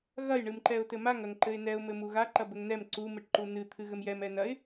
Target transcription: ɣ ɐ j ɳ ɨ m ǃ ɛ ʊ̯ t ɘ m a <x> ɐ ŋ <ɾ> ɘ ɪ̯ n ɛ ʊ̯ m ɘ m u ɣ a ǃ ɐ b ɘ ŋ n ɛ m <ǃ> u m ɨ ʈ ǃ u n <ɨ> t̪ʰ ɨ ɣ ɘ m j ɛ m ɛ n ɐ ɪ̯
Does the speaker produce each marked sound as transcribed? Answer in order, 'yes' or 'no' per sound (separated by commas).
no, no, no, yes